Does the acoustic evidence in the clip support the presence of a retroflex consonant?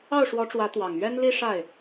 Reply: yes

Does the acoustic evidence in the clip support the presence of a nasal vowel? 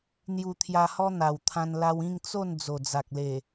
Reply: yes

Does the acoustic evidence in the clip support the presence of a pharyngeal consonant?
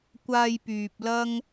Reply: no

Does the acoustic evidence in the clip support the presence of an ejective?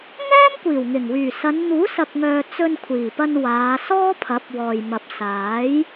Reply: no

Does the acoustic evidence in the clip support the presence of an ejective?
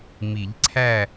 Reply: no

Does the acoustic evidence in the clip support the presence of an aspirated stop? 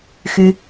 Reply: no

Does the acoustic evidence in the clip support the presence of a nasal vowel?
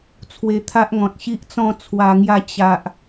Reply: yes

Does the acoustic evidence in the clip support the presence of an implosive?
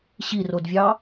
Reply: no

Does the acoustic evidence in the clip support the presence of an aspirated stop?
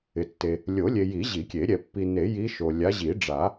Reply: no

